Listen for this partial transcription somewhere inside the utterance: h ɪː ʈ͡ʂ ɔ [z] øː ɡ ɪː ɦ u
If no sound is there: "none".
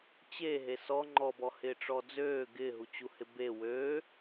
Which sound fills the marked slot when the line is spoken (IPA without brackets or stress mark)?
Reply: d͡z